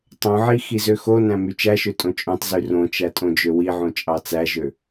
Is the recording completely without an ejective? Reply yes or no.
no